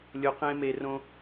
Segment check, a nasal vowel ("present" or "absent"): present